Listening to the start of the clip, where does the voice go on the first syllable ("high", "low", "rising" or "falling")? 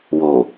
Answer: low